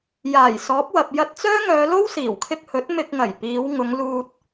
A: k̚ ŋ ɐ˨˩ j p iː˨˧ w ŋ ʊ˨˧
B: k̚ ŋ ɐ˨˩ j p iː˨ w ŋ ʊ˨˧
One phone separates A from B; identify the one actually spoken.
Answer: A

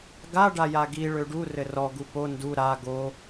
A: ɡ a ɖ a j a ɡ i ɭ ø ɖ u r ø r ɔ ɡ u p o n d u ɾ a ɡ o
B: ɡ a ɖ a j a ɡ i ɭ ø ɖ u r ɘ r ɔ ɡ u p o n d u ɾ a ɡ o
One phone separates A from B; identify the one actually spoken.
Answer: B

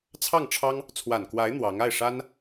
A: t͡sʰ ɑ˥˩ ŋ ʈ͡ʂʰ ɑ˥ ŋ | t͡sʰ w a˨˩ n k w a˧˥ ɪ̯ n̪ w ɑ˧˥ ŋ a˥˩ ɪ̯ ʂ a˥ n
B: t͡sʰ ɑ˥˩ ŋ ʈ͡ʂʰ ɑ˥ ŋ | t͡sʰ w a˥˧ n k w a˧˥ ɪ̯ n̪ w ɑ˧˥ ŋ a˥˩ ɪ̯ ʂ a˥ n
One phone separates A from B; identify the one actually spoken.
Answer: A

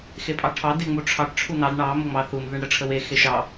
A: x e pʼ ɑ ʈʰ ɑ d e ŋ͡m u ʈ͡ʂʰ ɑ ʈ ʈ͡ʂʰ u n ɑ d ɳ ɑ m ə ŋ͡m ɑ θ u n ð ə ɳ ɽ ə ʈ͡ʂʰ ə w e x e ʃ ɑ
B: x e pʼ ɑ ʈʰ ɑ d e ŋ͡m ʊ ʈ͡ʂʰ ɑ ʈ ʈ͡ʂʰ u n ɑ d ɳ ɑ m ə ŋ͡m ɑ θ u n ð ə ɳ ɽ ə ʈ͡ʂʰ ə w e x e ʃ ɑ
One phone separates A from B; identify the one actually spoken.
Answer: A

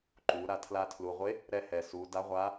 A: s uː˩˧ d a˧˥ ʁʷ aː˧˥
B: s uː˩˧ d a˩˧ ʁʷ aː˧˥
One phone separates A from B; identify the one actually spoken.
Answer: A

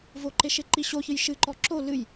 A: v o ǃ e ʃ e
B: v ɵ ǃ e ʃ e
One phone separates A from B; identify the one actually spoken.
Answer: A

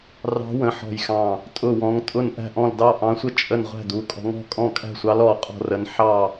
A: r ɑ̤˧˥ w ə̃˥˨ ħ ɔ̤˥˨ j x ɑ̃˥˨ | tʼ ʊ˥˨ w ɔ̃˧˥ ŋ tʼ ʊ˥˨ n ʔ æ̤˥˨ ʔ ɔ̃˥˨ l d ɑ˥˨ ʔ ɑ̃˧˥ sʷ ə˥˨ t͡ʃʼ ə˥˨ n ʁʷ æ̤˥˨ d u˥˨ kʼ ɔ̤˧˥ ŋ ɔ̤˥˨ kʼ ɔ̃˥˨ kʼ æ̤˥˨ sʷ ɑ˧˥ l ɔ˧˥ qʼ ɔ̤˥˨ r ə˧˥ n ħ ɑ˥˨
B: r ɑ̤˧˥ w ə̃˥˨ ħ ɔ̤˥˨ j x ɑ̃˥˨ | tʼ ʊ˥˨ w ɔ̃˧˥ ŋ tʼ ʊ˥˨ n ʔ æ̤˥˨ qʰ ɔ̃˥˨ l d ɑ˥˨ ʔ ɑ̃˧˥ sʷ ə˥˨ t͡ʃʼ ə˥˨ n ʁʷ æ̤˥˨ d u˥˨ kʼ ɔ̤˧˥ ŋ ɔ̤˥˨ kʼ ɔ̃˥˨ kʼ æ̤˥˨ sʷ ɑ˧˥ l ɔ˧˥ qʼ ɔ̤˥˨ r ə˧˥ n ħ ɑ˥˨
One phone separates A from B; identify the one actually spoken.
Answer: A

